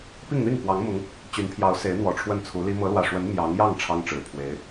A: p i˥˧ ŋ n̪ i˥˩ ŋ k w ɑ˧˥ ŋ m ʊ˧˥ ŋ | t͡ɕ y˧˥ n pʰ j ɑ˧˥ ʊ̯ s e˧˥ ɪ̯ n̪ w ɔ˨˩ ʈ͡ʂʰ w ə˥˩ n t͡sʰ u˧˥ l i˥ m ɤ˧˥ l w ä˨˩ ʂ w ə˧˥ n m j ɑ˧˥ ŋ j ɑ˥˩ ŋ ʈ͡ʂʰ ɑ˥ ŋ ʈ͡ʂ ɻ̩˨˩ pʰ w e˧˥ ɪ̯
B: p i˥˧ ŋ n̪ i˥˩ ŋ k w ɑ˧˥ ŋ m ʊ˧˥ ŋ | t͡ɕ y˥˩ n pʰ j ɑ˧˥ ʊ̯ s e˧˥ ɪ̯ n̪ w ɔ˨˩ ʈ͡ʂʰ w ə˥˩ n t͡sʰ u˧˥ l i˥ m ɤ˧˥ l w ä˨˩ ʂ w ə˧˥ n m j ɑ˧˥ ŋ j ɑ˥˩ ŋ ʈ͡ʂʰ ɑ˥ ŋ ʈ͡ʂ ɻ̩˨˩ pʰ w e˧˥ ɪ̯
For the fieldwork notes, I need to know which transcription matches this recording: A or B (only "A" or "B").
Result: A